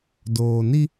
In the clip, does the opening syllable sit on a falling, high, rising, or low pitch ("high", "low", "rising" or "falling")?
low